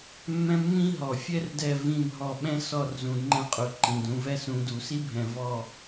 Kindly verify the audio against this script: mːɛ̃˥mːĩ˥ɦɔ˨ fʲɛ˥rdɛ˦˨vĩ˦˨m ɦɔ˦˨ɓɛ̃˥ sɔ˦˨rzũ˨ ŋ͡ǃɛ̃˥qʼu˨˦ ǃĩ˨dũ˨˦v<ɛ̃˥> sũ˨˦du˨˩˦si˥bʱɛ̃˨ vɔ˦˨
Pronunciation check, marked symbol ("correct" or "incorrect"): incorrect